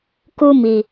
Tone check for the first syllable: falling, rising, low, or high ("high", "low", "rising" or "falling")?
high